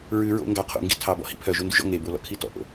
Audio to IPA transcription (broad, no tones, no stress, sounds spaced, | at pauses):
ɹ ʉ ɹ o̰ ŋ ɡ ɑ qʰ o̰ ŋ ɡ ḭ tʰ ɑ b ɔ̰ h ḭ pʰ œ ʒ o n d ʉ ʒ ɔ̰ ŋ e b o l ɔ̰ kʰ i t ɔ̰ ʔ o̰